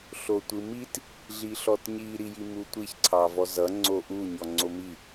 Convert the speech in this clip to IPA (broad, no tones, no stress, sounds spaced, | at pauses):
ɬ o tʷ ɯ m i t | ɮ i ɬ ɔ t ɲ i ɾ i j i m u tʷ i ç ǀʰ ɑ v ɔ z ʌ ŋ͡ǀ o ʔ u ɲ ɔ ŋ͡ǀ o m i